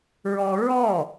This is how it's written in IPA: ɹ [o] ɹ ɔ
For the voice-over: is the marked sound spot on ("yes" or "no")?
no